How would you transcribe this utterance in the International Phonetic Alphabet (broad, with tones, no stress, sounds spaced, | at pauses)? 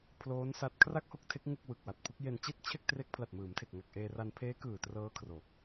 pʰ l oː˦˥ n s a˦˥ t̚ kʰ r a˥˩ k̚ h o˥˩ k̚ tʰ e˦˥ k̚ ŋ u˥˩ k̚ w ɯ˨˩ k̚ w a˨˩ t̚ pʰ u˦˥ k̚ j e˧ n t͡ɕ i˥˩ t̚ t͡ɕʰ e˥˩ k̚ t r e˦˥ k̚ pʰ l a˨˩ t̚ m ɯː˩˦ m tʰ e˨˩ k̚ ŋ a˨˩ k̚ ʔ eː˧ r a˧ n pʰ eː˦˥ k ɯː˨˩ t r ɤː˦˥ kʰ r o˨˩ k̚